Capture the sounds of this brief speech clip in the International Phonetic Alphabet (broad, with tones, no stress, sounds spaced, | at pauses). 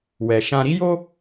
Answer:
w ɛ˨ ʃ ã˧ ɾ i˦ j o˦